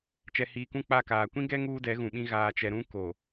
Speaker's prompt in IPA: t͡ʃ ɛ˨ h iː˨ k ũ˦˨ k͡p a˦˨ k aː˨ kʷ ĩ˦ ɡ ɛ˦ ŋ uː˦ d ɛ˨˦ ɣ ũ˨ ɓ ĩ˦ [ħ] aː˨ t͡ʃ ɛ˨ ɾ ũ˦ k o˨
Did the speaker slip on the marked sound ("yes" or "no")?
yes